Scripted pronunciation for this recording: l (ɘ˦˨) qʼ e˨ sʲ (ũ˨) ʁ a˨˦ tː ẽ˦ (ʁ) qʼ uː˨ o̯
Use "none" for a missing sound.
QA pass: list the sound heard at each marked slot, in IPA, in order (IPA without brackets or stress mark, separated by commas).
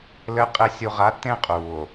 ɘ˨˦, u˨, none